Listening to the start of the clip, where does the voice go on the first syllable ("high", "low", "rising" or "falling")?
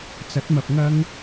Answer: rising